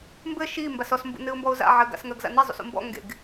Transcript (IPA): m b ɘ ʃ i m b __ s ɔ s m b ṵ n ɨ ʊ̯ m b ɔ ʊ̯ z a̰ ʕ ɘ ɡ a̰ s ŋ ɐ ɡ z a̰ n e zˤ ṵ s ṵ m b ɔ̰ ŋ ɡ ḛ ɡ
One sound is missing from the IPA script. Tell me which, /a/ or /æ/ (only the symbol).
a